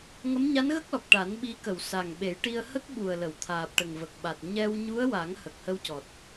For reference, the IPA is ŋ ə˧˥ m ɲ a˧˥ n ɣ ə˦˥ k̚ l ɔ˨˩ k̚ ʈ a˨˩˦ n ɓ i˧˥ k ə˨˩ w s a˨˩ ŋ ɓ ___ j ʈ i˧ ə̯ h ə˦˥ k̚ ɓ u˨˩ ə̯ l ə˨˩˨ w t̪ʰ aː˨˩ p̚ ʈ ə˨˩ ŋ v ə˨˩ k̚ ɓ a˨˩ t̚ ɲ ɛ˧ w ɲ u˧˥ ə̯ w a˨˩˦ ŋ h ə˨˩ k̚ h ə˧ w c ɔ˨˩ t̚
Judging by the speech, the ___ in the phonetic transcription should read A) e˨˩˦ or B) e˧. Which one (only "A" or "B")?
A